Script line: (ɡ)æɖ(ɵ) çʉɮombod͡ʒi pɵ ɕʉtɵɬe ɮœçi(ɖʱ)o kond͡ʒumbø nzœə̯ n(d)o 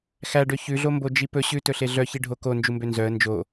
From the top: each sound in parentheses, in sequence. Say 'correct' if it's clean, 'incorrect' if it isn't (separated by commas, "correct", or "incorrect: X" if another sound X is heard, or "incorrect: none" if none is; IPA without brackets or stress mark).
incorrect: x, incorrect: ø, correct, incorrect: d͡ʒ